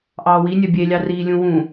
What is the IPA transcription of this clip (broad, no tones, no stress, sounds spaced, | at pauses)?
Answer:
ʔ ɑː w i nʲ œ bʲ e lʲ ɑ r iː lʲ ũ w ũ